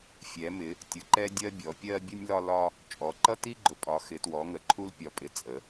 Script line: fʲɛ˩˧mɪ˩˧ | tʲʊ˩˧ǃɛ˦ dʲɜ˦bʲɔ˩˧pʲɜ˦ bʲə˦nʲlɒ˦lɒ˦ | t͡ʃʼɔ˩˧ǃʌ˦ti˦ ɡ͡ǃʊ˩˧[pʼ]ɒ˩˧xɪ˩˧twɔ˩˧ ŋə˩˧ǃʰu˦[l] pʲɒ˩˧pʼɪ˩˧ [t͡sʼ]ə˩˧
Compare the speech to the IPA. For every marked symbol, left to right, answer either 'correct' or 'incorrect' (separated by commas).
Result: correct, correct, correct